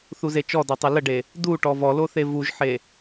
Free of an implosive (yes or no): yes